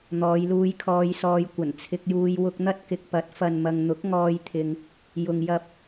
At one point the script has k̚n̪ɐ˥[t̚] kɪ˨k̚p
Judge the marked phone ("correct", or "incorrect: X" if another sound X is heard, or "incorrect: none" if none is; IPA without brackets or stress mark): correct